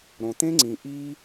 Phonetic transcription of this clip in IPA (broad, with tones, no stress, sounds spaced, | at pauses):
ɾ õ˩ t̪ ẽ˥ ŋ͡ǀ ĩ˩ ʔ i˥